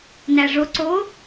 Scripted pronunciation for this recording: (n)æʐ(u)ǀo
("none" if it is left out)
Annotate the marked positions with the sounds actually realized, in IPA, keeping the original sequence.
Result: n, o

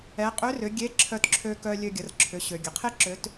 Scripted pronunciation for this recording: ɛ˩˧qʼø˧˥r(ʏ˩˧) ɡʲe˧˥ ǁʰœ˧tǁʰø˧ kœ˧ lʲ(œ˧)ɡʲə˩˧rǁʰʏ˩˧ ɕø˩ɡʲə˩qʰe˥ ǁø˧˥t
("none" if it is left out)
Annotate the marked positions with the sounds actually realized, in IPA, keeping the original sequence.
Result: ʏ˩˧, ø˧

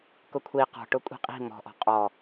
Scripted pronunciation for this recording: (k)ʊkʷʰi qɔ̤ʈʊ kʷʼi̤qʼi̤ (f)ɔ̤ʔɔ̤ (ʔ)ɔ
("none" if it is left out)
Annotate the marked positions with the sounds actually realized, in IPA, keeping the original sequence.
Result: k, m, qʼ

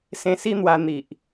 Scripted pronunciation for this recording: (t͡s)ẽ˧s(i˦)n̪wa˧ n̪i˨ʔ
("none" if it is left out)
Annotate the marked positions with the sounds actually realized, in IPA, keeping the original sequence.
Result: s, i˦

